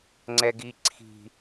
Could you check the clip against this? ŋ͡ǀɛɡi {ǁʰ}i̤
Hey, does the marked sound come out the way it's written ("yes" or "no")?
no